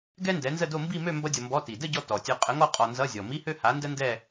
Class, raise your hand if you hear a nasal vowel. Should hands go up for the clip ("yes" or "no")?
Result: no